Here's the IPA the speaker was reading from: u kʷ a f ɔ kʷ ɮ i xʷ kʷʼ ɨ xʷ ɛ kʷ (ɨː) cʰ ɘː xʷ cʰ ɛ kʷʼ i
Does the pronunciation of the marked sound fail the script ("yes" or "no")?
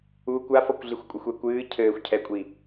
no